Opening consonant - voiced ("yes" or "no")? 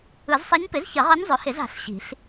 yes